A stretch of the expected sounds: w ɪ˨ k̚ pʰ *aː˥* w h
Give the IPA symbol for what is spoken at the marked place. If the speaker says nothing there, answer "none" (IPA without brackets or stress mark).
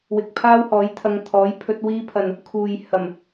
aː˥